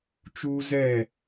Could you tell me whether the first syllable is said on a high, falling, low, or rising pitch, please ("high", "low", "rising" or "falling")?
high